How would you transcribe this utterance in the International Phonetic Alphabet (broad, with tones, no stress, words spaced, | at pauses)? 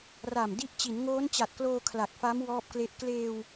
ra˨˩mdi˦˥ʔ t͡ɕi˩˦nŋoː˦˥nt͡ɕa˨˩t̚kloː˧ kʰla˨˩k̚fa˦˥m wɔː˥˩p̚kle˥˩ʔ kleː˧w